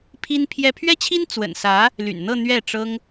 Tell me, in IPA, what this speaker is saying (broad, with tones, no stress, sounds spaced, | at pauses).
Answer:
pʰ i˥ n pʰ j ɛ˥ pʰ ɥ ɛ˥ t͡ɕʰ i˥ n t͡s w ə̰˨˩ n s ä˧˥ | l y̰˨˩ n n̪ ɤ˥˧ n̪ ɥ ɛ˥˩ ʈ͡ʂ ɤ˥ ŋ